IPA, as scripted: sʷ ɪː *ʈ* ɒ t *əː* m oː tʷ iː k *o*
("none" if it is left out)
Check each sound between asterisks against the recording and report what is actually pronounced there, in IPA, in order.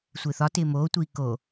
θ, ɪː, o

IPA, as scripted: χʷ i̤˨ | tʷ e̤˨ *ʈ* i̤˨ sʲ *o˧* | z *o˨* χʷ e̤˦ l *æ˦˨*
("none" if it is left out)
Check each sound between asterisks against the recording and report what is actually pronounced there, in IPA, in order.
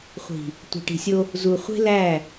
ʈ, o˧, u˨, æ˦˨

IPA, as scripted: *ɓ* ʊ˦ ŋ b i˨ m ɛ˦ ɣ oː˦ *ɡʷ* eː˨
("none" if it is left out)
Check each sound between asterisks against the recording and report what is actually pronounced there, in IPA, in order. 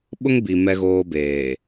ɓ, b

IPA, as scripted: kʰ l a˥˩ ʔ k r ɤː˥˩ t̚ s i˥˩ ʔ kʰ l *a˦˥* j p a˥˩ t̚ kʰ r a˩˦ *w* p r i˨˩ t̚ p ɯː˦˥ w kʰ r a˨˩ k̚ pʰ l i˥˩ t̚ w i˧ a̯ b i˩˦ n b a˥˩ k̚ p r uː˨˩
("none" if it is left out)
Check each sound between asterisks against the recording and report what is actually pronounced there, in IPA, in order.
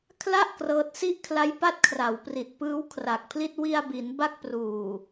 a˦˥, w

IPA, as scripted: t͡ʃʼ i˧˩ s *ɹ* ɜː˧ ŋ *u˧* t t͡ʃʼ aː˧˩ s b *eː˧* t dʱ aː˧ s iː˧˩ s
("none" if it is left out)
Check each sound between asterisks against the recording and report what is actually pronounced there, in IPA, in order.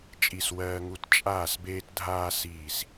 w, u˧, eː˧

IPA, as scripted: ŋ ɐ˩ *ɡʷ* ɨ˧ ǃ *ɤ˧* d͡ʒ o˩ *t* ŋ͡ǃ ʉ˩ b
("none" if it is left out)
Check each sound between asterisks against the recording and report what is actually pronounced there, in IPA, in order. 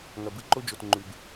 b, o˧, t

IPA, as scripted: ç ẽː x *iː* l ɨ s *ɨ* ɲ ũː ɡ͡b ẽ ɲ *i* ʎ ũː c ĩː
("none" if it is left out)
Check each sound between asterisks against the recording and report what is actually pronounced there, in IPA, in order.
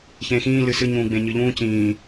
ĩː, ɨ, ɨ

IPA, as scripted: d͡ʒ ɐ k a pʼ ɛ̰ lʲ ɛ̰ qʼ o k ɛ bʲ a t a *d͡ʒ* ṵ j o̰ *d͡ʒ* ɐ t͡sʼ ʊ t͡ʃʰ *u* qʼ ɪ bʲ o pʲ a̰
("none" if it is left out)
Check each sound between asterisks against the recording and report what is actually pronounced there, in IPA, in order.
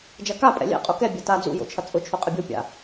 d͡z, t͡ʃʰ, o

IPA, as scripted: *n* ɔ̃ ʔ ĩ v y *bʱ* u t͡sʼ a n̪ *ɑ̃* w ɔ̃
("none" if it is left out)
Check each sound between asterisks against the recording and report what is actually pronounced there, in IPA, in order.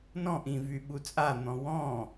n, ɓ, ɔ̃

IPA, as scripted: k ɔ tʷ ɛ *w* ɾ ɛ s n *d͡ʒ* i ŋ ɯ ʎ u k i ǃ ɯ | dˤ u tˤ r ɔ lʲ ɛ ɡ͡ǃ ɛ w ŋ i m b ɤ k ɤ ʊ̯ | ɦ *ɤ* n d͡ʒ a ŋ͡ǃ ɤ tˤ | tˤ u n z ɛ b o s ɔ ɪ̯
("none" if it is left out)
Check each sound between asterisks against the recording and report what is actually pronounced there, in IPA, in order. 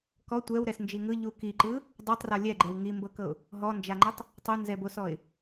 w, d͡ʒ, ɔ

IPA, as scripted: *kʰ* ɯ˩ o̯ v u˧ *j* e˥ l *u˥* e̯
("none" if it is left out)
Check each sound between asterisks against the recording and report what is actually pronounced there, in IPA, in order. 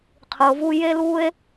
qʰ, j, u˥

